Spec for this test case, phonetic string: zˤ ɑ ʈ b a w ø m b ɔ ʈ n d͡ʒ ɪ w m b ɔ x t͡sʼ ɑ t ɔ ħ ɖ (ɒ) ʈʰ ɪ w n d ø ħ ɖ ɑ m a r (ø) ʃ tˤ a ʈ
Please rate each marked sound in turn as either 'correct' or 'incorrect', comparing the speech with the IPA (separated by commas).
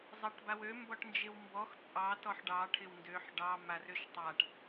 incorrect, correct